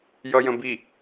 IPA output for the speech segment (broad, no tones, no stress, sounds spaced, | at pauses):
j ʌ j ə̃ b i